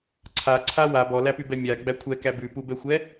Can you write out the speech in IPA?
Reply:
ǀʰaǀʰa wa bɔlæpybɛ mʲaɡ͡bæ kʷʰɛkæ bʉpubɛxʷɛ

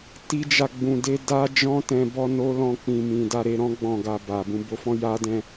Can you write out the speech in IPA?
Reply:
ti˦d͡ʒa˦˨ɡ͡bũ˧de˦ da˦ d͡ʒɔ̃˦tɛ̃˧ bɔ˧ no˦lɔ̃˦˨ k͡pĩ˨mĩ˨ da˧ɾe˧ɾɔ̃˦ ɡ͡bɔ̃˦˨ɡa˧ba˨ bũ˨bo˨˦fɔ̃˧ ja˧dɛ̃˧

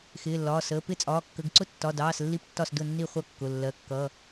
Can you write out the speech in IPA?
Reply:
xɪː˩˧˩lːɒː˩˧˩səː˩˧˩ pɪ˥˩t͡sʼɒː˩˧˩ kːə˩˧˩ɡǀʊ˥˩ tːɒ˩˧˩dɑː˩˧˩s lːi˥˩p tːɒ˥˩s dʊ˥˩nːi˥˩ χʷʌ˥˩kːʊ˩˧˩ lːɜ˩˧˩kːʌ˩˧˩

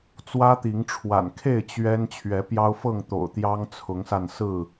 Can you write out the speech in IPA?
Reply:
t͡swä˦t̪i˨˦ŋʈ͡ʂʰwa̰˨˩nkʰe˥˨ɪ̯ t͡ɕɥɛ˦n t͡ɕʰɥɛ˨˦pjɑ˦ʊ̯fɤ˥˨ŋ t̪o̰˨˩ʊ̯t̪jɑ˦ŋ t͡sʰʊ˨˦ŋsa˧nsɹ̩˥˨

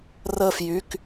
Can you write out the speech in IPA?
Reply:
rəː˧˩f jy˩˧˩k

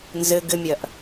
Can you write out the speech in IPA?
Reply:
nzɘ ɡɘmʲɐʔ

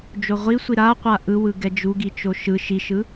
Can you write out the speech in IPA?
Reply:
d͡ʒoʁʷisʷi ɾaqʷa ʔɯwɯ ɡɛd͡ʒuɡi t͡ʃoʃɯ ʃiʃɯ

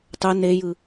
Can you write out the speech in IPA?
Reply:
tˤø nejɯ

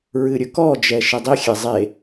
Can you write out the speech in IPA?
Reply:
ɹɨɾʲɵkɔd͡ʒɛ ʃɨdˤixʲɛ zˤe

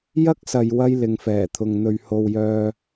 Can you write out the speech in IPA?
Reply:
jɐ˥k̚sɐ˨jwɐ˧j lɪ˨ŋfɛː˨˩t̪ʰʊ˨ŋ n̪ɵ˨ɥho˨w jœː˨

